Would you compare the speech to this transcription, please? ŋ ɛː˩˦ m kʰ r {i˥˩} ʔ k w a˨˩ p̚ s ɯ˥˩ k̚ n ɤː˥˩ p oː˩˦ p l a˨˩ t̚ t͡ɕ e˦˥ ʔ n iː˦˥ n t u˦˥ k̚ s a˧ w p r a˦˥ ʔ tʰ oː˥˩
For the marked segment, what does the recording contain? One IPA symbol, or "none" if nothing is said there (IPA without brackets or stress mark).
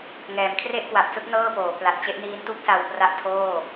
e˥˩